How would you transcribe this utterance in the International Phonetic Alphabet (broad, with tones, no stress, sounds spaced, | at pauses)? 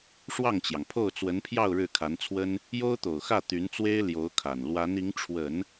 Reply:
ʂ w ɑ˥˩ ŋ t͡ɕ j ɑ˩ ŋ pʰ o˥˩ ʊ̯ t͡s w ə˧˥ n pʰ j ɑ˥˧ ʊ̯ ɻ ɻ̩˥˩ kʰ a˧˥ n t͡sʰ w ə˥ n | j o˥ ʊ̯ t̪ o˨˩ ʊ̯ x ä˥˩ t̪ y˧˥ n t͡s w e˥ ɪ̯ l j o˧˥ ʊ̯ kʰ a˨˩ n l w a˧˥ n i˧˥ ŋ ʈ͡ʂʰ w ə˨˩˦ n